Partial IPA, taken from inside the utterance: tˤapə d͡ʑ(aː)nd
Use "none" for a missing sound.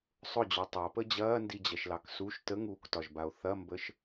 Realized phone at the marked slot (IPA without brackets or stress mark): ɐː